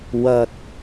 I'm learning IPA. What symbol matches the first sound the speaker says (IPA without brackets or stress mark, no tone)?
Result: w